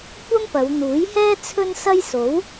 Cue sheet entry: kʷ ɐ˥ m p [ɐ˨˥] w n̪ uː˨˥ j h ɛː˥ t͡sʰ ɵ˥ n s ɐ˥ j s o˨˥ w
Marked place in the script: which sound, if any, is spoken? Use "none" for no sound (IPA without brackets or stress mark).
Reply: ɐ˨˧